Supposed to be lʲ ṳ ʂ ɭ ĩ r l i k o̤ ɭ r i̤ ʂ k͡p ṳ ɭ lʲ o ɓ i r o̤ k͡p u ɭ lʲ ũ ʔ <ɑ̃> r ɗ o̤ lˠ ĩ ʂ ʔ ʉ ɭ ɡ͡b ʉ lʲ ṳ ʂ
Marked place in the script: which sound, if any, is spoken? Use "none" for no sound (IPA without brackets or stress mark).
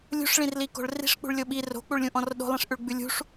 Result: ɔ̃